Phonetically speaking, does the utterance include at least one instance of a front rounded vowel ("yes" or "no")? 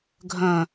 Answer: yes